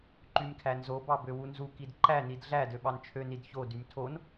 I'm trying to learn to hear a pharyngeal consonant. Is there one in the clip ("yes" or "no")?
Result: no